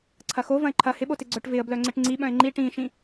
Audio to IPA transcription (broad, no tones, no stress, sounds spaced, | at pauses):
ǀʰ ɐ x o v ɐ̃ ɪ̯ ǃʰ ɐ h ɪ ɓ o t ɪ ɡ͡ǀ œ ʈ v ɪ ə̯ b l œ ŋ͡ǀ ɪ ʈ ŋ͡ǀ i ɓ œ̃ ɪ̯ ŋ͡ǃ i ʈ ĩ ʃ ĩ